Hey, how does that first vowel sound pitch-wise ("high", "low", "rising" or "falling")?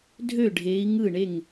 falling